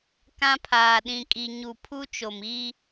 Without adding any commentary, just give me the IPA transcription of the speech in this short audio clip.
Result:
k ã˦ pʰ aː˨ ɗ ĩ˨ kʼ i˨ ɲ u˨ pʰ u˦ t͡ʃ o˨ m i˦

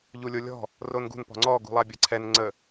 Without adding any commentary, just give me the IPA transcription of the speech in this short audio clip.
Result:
ʎ u lʲ o lʲ ɔ̤ | r o n ɡ ṳ n p ɔ̤ ŋ͡ǀ ɔ ɡ ṳ lˠ a bʲ ɜ ǀʰ ɛ n ŋ͡ǀ ə

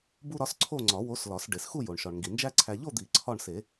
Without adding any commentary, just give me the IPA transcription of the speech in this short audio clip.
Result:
b u˥ ɾ ɒ˧˥ s ǀʰ o˥˧ ŋ͡ǀ ɒ˨˩˦ w o˧˥ s l ɒ˨˩˦ s ɖ e˩ s x u˥˧ j o˩ ɳ ʃ ɒ˩ ɳ ŋ ɡ i˩ n d͡ʒ æ˥ ǀʰ æ˧ ʎ o˥˧ d̪ i˨˩˦ ǀʰ ɒ˥˧ ɳ s e˨˩˦

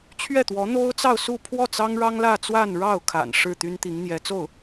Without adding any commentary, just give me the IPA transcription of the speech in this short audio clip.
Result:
t͡ɕʰ ɥ ɛ˥˩ t̪ w ɔ˧˥ n̪ o˥ ʊ̯ t͡s ɑ˥˧ ʊ̯ s u˥˧ pʰ w ɔ˥˩ t͡s ɑ˥ ŋ ɻ ɑ˥ ŋ l ä˥˧ t͡s w a˥˧ n ɻ ɑ˥˩ ʊ̯ kʰ a̰˨˩ n ʂ ɻ̩˥˩ t̪ y˥ n t̪ i˧˥ ŋ n̪ j ɛ˧˥ t͡s o˥˩ ʊ̯

